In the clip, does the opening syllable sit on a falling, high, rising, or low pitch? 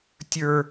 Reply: high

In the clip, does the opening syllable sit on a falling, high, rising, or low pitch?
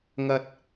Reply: low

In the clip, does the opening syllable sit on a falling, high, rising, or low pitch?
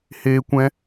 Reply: high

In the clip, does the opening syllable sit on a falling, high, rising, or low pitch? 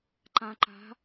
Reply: low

